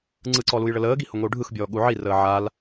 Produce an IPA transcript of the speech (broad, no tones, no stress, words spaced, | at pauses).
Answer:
ŋ͡ǀɯǀɔ lujɭələːɡi hʊŋʷiu̯ɖʱɯxbʲɔː ɠuʕirəː ʕal